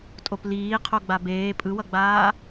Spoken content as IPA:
tʼ o p l iː qʰ o ɡ͡b a b eː pʼ ɯ w ʌ ɡ͡b aː

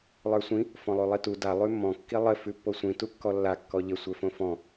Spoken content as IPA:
lˠ ə˞ sʷ ĩ | f ɔ̃ lˠ ʉ lˠ i t u d a lˠ ʉ mː ɔ̃ kː i lˠ ɘ f ʉ pː o sʷ ĩ t u kː ɔ lː a kː ɔ ʎ ɘ sʷ ə˞ f õ f ɔ̃

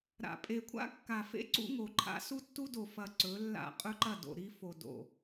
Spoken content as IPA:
ɾ a̰˨ pʼ e˨ kʷʰ a̰˦ kː a˨ f ḛ˦ ǀ ṵ˦ ŋ o˨ ǃʰ a̰˦ s u˦ tː u˦ d o˨ f ɐ˨ ǀ ɵ˨˦ lː a̰˦˨ qʼ ɵ˦ ǃ ɐ˦˨ d o̰˨ ɾ i˦ f o˨ d o̰˨

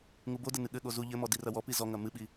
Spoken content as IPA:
ŋ u b o d ɘ n ɨ ɠ ɘ ɠ o z u ʎ ɘ m ɔ d i r ɐ w ɔ p i z ɔ ŋ ɐ m ɨ ɓ i

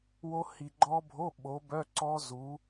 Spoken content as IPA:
w o˦˥ h i˨ ɡ͡ǃ ɔ˦˥ bʱ o˧˥˧ ɓ o˨˥ b œ˧˥˧ ǀ ɔ˦˥ z u˨˥

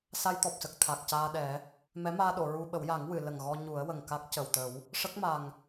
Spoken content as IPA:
s a˧ j t̪ ɔ˨˩ p̚ s ə˨˩ k̚ t̪ʰ a˨˩ k̚ c aː˧ ɗ ɛ˨˩˦ | m ɛ˧˥ m aː˧ ɗ o˨˩˨ ɹ u˧ ɓ ə˨˩˦ w j a˨˩˦ ŋ w ɨ˨˩˨ l ə˨˩ ŋ ɣ ɔ˧ ɲ u˨˩˦ ə̯ w ə˨˩ ŋ k a˦˥ k̚ c ə˨˩ w t̪ ə˨˩˦ w | ʂ ə˦˥ k̚ m a˨˩ ŋ

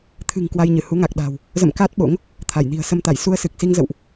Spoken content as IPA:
t̪ʰ ɨ̤˨˩ ŋ k w a˧ j ɲ ɨ˧˩ h u˨˦ ŋ a˨˩ k̚ ɗ a̤ː˨˩ w | z ə̰˧˨ m k aː˦˥ t̚ ɓ o̰˧˥ ŋ | t̪ʰ a˧˩ j n i̤˨˩ ə̯ s ə˧ m t̪ a˧˩ j s u˧ ə̯ s ɨ˨˩ k̚ s i˧ ŋ z ə̰˧˨ w ʔ

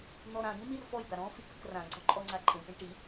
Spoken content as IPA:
n̪ ɔ ɾ ã d̪ ĩ m i r f ɔ j d̪ a ɾ ɔ̃ f i k ə k r ã ɡ͡ǀ ɔ ǃʼ ɔ ŋ͡ǀ a ǃʼ ĩ ʈ ĩ ʈ i

